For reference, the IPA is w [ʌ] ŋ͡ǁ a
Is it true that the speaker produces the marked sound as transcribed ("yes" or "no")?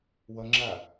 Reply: yes